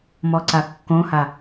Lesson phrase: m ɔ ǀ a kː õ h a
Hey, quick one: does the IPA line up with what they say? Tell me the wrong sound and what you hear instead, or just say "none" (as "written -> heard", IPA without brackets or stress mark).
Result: none